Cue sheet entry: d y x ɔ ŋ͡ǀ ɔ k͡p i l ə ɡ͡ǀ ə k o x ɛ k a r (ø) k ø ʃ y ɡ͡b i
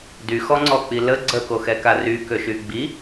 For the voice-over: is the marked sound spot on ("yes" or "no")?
no